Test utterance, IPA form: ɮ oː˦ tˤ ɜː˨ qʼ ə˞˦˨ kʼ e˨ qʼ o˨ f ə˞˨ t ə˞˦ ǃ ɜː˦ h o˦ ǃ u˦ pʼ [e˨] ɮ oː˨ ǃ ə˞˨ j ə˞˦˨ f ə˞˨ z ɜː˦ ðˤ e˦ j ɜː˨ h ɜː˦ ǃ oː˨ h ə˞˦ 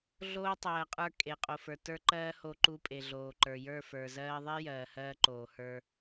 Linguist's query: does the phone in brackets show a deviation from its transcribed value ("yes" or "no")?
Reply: no